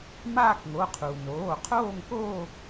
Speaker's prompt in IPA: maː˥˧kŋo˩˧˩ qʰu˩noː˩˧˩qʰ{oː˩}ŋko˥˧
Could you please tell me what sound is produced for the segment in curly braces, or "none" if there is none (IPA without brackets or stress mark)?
oː˥˧